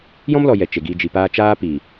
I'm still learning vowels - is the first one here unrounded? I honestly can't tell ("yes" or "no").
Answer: no